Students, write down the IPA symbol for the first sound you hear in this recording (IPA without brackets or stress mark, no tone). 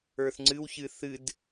ə˞